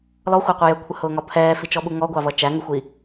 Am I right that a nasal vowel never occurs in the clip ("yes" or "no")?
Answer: yes